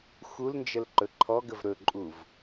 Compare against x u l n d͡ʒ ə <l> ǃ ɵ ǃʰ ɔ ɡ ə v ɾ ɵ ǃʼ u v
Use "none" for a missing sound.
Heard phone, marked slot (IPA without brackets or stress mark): l